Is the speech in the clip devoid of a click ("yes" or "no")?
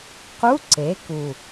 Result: no